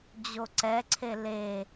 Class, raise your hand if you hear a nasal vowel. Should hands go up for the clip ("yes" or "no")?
no